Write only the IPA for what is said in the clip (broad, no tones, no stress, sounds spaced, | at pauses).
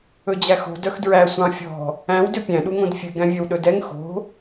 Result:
ɵ d͡ʑ æ x o̤ d œ x d ɹ æ sʷ ɑ̃ fʲ ɔ̤ | æ̃ w d ø pʲ æ̃ ɗ u ŋ õ d fʲ ʉ ɡ æ̃ vʲ œ w ɗ ɵ d ɛ ŋ x o̤